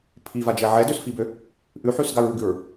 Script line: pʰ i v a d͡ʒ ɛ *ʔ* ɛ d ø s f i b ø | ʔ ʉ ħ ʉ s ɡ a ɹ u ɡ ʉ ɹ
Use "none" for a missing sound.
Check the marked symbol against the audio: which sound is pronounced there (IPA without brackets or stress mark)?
ʕ